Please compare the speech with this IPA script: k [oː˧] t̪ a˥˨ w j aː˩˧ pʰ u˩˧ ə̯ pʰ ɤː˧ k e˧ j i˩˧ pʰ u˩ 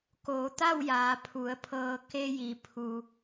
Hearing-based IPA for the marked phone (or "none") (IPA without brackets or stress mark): oː˩˧